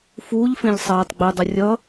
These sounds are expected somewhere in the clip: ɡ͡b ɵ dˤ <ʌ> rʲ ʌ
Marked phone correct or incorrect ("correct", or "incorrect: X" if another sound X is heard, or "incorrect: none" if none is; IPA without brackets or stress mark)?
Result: correct